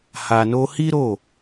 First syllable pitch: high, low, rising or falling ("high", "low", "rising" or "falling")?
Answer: low